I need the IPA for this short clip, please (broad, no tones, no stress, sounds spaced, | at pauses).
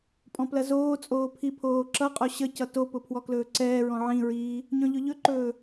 pʼ ɔ̃ p l ɐ z oː t͡sʼ oː pʰ i pʰ oː ǁ ʌ qʼ o ɕ ə c ʌ t o p ʊ pʰ w ɔ k l ɵː ǀ ɛː ɹ ɔ̃ ʕ ĩ ɹ iː | ɲ ɔ̃ ʎ ʊ ʎ ɵ ǃ ɵː